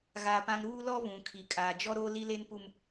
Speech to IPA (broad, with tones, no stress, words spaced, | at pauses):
ɣa˨pã˨ŋ ɾuː˦lɔ˦ βũ˨ kʰi˨kʼaː˨d͡ʒɔ˦ ɾoː˦li˦le˦npu˦m